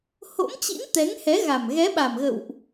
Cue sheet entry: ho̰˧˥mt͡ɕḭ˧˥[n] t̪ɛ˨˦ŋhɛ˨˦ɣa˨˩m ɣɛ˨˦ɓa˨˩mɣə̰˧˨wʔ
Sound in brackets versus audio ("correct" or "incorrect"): correct